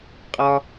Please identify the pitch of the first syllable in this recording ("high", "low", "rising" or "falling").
low